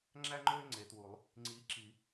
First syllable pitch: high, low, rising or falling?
high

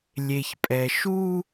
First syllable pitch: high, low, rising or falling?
low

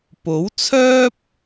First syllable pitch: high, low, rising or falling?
rising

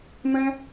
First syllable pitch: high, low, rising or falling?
high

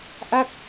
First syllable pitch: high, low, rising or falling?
falling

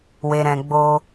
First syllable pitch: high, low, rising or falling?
low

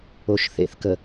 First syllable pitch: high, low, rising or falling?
low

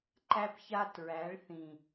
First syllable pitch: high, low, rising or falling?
high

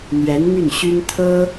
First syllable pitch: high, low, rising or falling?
rising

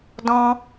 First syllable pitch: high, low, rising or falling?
high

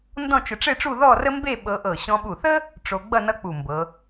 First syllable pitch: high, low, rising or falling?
falling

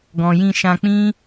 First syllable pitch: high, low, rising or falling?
low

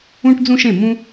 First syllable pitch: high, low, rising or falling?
high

